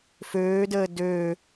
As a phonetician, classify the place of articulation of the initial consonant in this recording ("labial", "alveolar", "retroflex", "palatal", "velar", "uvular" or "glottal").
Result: labial